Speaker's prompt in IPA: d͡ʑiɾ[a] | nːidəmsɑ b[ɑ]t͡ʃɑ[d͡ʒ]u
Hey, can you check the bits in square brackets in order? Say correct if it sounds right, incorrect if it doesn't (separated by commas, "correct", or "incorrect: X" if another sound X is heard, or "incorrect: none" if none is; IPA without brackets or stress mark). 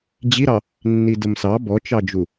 incorrect: ɑ, incorrect: ɔ, correct